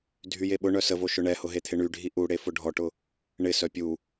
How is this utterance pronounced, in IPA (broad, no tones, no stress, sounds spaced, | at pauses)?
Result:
dʱ y j e ɓ ʊ ɳ œ s ə v o ʃ ʊ ɳ ɛ h ʊ ɦ e t̪ʰ ɪ ɳ y ɖʱ i ʔ u ɽ e f ʊ ɖʱ ɔ ʈ ʊ | ɳ ɪ s œ pʲ u